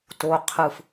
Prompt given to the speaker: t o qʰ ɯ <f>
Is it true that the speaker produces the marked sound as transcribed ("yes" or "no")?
yes